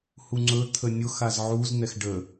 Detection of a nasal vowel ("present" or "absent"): absent